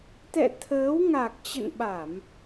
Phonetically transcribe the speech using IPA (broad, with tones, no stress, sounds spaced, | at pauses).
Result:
t̪ ɛ̰˧˨ t̪ʰ əː˨˦ w ŋ a˨˩ k̚ t͡ɕ ə̰˧˨ n ɓ a˧˩˨ m